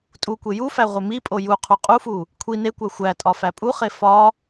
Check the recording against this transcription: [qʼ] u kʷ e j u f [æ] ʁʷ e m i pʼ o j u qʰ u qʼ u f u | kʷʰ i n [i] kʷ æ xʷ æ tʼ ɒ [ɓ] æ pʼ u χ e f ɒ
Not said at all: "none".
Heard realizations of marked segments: tʼ, æ, e, f

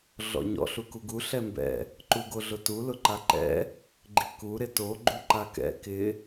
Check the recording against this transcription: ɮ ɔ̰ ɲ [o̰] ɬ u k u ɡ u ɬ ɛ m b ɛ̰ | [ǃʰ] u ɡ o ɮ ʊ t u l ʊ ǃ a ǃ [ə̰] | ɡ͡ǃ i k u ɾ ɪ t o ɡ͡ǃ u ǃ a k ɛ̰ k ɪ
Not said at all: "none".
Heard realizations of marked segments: ɔ̰, ǃ, ɛ̰

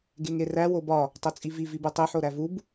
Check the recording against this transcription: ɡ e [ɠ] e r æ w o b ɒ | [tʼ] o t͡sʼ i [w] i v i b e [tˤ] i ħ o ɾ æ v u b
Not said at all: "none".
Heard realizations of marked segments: ŋ, tˤ, v, tˤ

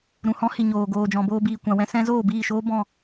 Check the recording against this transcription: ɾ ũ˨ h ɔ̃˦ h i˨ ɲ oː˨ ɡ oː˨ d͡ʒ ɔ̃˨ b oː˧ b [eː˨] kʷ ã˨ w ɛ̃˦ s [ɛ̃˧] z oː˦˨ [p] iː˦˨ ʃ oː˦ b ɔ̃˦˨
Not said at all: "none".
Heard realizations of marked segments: iː˨, ɛ̃˦, b

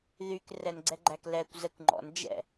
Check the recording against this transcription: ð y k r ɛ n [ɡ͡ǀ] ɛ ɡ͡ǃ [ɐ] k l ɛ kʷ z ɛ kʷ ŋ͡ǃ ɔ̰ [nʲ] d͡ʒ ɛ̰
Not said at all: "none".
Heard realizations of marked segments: ɡ͡ǀ, æ, n

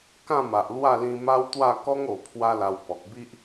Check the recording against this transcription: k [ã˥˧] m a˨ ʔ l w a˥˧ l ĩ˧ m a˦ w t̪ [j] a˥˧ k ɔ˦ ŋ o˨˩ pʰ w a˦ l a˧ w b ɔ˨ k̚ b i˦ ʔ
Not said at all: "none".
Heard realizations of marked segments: ã˥˧, w

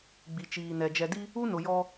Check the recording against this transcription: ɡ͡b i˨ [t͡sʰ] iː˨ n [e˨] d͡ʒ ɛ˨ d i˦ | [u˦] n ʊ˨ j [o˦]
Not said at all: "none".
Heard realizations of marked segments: t͡ʃ, ɛ˨, u˦, ɔ˦

